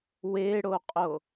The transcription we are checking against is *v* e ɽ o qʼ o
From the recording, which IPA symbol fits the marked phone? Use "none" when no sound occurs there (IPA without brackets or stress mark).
w